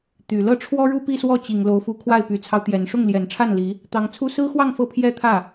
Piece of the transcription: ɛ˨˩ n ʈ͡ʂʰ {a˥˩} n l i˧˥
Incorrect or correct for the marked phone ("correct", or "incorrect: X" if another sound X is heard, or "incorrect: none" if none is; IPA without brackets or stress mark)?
correct